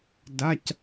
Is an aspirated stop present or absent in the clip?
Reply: absent